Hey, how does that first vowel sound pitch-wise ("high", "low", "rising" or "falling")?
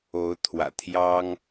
rising